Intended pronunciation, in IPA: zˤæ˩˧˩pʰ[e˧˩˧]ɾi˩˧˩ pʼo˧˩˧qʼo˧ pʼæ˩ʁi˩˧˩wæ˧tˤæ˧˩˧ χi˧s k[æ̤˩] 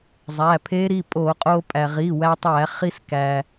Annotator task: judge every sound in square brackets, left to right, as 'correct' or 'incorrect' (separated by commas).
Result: incorrect, incorrect